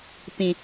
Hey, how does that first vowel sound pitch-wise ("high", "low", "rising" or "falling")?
low